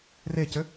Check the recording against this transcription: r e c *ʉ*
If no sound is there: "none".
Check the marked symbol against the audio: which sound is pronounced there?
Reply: ø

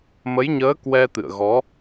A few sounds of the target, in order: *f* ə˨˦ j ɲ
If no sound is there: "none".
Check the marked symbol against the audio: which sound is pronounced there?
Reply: m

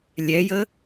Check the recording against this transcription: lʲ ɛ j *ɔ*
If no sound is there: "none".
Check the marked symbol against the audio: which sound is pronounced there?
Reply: ə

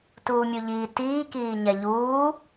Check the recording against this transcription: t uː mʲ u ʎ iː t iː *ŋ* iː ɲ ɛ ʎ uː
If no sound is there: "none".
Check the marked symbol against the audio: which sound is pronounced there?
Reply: k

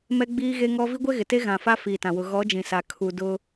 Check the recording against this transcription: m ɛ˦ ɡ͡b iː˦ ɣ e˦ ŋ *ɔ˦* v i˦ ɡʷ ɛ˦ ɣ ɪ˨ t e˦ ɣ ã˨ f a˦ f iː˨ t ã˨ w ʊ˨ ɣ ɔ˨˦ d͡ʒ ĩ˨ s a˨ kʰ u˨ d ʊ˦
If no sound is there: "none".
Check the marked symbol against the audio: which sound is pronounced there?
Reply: ɔ˦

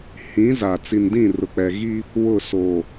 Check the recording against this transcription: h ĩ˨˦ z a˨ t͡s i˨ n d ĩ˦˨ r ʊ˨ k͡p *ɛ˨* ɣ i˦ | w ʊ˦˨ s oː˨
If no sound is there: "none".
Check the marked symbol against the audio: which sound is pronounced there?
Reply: ɛ˨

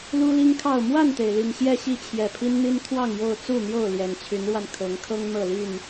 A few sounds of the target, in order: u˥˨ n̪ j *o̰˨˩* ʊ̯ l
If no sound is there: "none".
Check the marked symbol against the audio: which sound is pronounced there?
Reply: o˥˨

